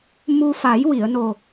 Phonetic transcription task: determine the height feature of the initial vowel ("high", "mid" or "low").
high